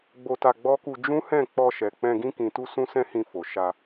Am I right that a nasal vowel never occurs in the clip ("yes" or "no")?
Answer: no